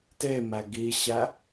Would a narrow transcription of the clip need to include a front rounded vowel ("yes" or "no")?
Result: no